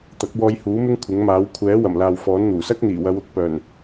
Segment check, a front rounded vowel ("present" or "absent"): present